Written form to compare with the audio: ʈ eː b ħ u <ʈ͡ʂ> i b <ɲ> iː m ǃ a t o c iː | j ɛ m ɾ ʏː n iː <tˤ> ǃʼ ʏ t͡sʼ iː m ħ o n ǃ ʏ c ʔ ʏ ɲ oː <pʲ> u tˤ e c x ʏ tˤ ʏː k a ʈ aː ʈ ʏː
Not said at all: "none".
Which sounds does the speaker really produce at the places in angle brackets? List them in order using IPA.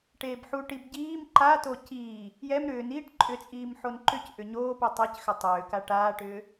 ʈ, ɟ, ʈ, p

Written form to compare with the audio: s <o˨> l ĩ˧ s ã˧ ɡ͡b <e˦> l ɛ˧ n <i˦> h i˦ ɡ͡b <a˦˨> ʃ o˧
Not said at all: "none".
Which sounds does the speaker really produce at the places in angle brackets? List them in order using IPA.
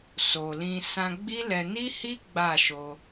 o˨, i˦, i˦, a˦˨

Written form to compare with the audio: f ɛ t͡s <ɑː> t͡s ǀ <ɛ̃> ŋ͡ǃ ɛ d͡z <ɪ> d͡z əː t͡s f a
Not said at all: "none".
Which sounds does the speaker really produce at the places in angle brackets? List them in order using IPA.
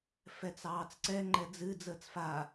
ɑː, ɛ, ɨ

